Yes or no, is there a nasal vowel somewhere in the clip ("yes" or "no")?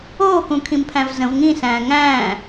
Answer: yes